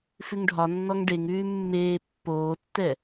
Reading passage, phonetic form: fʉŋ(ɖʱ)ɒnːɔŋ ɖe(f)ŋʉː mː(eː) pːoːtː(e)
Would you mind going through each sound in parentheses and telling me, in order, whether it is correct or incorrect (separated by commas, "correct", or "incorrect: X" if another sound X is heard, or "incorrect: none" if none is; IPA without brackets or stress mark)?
correct, incorrect: none, correct, incorrect: ɛ